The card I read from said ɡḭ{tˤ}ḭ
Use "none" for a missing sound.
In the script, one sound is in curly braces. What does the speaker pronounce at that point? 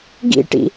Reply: ʈ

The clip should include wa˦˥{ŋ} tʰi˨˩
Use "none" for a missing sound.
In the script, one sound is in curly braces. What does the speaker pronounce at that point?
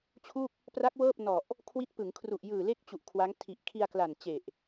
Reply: ŋ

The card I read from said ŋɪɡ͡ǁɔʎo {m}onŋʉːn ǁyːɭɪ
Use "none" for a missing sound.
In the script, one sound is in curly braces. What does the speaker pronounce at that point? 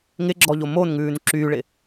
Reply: m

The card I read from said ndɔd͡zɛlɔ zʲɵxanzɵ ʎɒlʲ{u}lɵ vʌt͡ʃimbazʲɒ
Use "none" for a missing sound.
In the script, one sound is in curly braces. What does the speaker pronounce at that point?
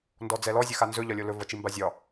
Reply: o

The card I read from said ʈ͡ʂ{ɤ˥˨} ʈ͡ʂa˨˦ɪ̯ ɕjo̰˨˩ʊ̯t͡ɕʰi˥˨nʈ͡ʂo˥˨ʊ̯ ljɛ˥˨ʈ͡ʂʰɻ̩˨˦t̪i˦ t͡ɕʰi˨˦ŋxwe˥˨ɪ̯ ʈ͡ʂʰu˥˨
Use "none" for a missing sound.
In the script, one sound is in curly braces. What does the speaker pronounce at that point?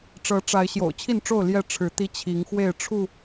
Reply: ɤ˨˦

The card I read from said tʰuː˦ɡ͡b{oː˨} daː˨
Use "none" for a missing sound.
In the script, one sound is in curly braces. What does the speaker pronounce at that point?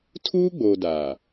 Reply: oː˨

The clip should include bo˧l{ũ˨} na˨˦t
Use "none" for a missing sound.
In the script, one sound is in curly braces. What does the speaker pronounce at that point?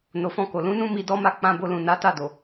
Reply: ũ˨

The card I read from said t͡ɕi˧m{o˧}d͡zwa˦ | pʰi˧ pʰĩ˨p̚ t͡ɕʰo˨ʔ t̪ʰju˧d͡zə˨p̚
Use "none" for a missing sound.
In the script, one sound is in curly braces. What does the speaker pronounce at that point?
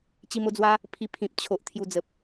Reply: o˧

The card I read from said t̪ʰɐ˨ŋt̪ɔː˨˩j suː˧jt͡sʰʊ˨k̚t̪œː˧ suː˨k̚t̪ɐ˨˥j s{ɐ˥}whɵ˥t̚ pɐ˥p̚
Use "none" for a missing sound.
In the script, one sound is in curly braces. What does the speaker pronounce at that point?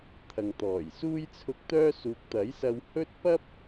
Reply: ɐ˧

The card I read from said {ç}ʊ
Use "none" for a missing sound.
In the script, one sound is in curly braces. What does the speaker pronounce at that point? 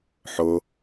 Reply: ħ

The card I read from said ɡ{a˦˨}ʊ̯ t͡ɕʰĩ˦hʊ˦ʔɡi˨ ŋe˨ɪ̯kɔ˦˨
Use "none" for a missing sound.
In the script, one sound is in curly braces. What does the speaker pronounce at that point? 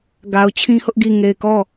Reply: a˨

